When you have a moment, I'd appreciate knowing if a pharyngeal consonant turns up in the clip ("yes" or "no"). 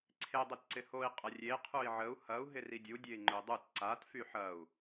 yes